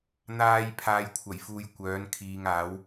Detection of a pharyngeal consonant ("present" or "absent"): absent